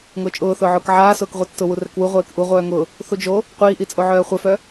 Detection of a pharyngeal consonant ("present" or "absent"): present